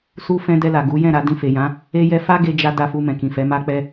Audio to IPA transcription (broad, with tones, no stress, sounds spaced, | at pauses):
s u˦ f ɛ̃˦ d ɛ˧ l a˨ ɡ u˨˦ j ɛ̃˦˨ ɾ a˨˦ d ĩ˧ f e˨ j ã˨˦ | e˦ j ɛ˦ f a˦ ɡ e˧ d͡ʒ a˦ d a˧ f u˧ m ɛ̃˨ k ĩ˨ f ɛ˨˦ m a˦ k͡p ɛ˦